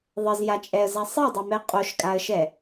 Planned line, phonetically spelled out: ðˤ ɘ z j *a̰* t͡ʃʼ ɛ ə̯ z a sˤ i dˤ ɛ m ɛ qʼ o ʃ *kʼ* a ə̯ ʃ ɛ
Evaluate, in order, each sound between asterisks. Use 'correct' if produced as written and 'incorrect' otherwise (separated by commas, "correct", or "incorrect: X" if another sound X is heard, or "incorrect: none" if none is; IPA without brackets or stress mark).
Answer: incorrect: a, correct